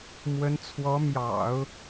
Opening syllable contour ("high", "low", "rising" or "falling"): rising